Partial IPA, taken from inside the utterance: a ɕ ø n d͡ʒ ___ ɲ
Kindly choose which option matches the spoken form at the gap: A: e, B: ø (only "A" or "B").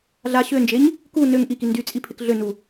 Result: A